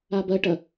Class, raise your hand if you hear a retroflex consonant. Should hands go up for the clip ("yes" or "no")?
yes